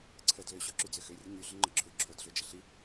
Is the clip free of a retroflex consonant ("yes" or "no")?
yes